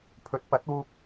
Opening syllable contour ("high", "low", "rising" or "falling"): rising